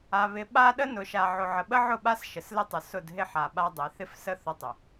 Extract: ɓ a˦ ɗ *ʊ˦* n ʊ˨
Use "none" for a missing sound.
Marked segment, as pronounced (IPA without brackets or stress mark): ə˦